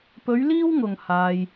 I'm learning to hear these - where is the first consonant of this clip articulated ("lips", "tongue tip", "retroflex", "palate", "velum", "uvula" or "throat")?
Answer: lips